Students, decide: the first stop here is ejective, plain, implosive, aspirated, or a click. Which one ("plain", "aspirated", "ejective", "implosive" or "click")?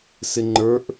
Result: click